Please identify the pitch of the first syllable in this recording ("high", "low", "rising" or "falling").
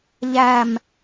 falling